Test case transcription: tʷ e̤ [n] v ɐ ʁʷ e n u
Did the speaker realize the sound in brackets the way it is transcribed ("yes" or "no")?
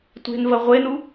yes